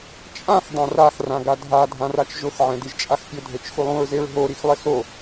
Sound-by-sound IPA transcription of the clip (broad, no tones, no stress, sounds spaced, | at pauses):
t͡ʃʼ ã x dˤ ã r a x r ã ɡ a dʱ a dʱ ã r a t͡ʃ ʒ ʊ x ʕ ɛ̃ d i ʒ t͡ʃʼ a x pʲ ʊ dʱ e t͡ʃ x u lˠ ũ ɹ z e ɹ ɦ o ɾ i x lˠ ɪ s o